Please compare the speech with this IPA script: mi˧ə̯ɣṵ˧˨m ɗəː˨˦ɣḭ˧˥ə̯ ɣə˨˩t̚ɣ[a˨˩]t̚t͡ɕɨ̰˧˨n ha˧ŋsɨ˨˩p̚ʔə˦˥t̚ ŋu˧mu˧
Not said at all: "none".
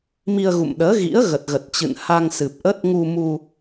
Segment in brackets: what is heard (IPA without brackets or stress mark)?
ə˨˩